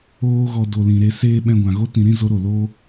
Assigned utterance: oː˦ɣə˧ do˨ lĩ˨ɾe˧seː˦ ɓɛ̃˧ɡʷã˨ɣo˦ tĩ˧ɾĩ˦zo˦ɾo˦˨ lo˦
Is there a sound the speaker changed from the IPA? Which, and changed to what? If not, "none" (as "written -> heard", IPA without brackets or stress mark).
ə˧ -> ɔ˧